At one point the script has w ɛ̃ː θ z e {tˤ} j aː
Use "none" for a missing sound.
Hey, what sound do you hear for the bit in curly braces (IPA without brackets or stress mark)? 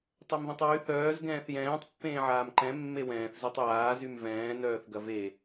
tˤ